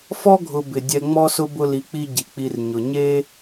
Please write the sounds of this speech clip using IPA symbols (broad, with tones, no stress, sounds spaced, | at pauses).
f ɔ˥ ɡʱ ʊ˨ b ɪ˩ dʲ ɛ˨ ŋ͡m ɔ˦ s ʊ˦ b ʊ˦ l i˨ k͡p i˦ ɟ i˩ k͡p i˨ r ɲ ʊ˩ ɲ e˦